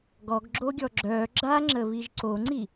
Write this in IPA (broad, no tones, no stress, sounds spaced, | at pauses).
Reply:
ɡ ɔ ɡ ɡ͡ǁ o ɡʲ ɔ ɡ͡ǁ œ ɡ͡ǁ a ŋ͡ǁ ə β i ʒ ǀ o ŋ͡ǀ i